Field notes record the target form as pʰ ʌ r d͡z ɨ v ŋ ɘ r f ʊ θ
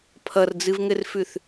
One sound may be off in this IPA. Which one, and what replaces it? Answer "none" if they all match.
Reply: ʊ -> ʉ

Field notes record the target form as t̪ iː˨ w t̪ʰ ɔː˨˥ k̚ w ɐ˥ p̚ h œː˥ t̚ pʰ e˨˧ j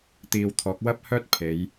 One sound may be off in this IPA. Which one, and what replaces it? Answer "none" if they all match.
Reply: none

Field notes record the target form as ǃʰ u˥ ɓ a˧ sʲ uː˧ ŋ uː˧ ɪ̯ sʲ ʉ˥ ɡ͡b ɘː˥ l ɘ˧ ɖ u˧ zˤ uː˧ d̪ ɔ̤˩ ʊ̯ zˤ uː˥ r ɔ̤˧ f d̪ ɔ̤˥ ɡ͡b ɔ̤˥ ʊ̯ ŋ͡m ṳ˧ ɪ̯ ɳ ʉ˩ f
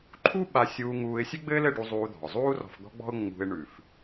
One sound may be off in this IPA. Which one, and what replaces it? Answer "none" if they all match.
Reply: none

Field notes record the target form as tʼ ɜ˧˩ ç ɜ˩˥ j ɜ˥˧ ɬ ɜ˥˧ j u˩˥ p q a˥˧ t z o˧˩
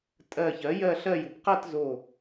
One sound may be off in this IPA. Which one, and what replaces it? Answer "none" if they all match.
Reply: none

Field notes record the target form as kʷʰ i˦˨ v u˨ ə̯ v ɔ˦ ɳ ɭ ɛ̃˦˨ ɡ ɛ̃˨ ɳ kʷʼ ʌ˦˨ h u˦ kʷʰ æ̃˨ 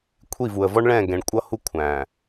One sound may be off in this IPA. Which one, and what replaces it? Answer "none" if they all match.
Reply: none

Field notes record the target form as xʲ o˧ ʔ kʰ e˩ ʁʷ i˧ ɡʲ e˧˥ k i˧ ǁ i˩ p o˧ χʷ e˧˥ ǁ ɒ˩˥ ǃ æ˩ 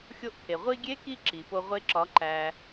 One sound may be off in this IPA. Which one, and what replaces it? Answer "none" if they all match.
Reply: χʷ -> ʁʷ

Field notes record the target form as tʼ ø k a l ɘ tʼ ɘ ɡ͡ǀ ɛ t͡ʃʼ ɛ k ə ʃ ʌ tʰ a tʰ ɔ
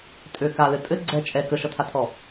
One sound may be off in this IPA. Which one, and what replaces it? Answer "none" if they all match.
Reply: none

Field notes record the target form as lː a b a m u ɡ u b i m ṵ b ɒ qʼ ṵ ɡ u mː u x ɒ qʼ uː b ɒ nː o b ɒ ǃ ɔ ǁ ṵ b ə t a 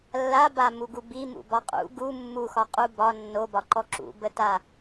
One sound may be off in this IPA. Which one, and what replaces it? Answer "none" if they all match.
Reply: uː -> u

